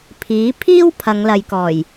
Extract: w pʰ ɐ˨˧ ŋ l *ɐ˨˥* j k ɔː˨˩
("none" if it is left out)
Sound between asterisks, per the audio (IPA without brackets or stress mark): ɐ˨